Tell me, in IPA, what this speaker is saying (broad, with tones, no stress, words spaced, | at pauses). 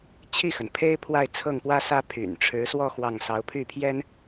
t͡ɕʰi˥˩xə˩n pʰe˥ɪ̯pʰwa˥˧ɪ̯ t͡sʰɤ˥˩ŋpwä˥sä˥ pʰy̰˨˩n ʈ͡ʂʰɻ̩˧˥swɔ˥˧ xwɑ˥˩ŋ sɑ˧˥ʊ̯pʰy˥˩pʰjɛ˥n